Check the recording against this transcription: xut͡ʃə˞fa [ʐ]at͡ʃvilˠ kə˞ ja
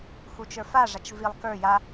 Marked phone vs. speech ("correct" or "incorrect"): correct